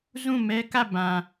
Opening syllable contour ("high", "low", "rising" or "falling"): falling